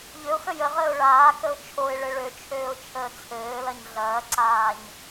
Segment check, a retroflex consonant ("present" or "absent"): present